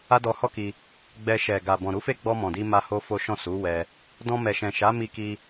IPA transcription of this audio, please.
a˦dɔ˧hɔ˦ki˧ | ɡ͡bɛ˧ ʃɛ˨ ɡa˨bɔ̃˨ ɾu˨˦fe˦˨ɡ͡bɔ˧ mɔ̃˨di˧ ma˦ho˦fo˦ʃɔ̃˦˨ su˨˦wɛ˧ | dɔ̃˧mɛ˨ʃɛ̃˨ʃa˨˦ mi˧ki˧

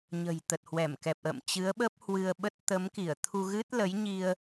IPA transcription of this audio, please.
ɲə̤˨˩jt̪ə˨˩t̚hwɛ˧˩m kɛ˨˩p̚ʔə̰ː˧˨m t͡ɕɨ˨˦ə̯ɓə˦˥p̚ hwɨ˧ə̯ɓə˦˥t̚ t̪ə˨˦m ki˧˩ə̯ t̪ʰu˧ɣɨ˦˥t̚ lə˨˦jɲi˧ə̯

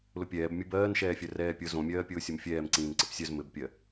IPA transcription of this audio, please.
lʊpʲɛːb mʲubɜːnʃɛːfʲœ rɛːpʲʊ zõmʲɜː pʲʊːsʲʊmfʲɛːm ǀĩːnǀɘpsʲœz mɘbpʲɜ

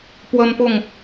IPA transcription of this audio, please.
pwə˦npʊ˥˨ŋ

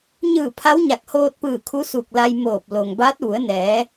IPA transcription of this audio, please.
ɲɯː˧˩ pʰa˧˥wɲa˧˩k̚hoː˧t̚pɯː˧˩ kʰu˧˥su˧˩k̚la˧jmoː˧˩p̚ lo˩ŋbaː˧˥t̚ʋu˩˧ə̯nɛː˩˧

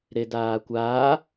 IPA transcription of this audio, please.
ɾedaːkʷaː

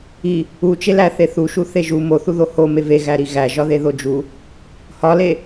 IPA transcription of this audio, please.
i | ut͡ʃelæ θeθuʃu θeʒu moθuðo home veɣæɾi ɣæʒɒðe ðod͡ʒu | hɒle

